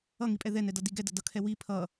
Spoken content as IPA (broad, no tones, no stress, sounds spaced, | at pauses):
ʌ ŋ i pʼ ɛ ð ɛ n ɛ d ʌ d i ɡ ɛ d ʌ d ʌ kʰ ɛ w i pʰ ʌ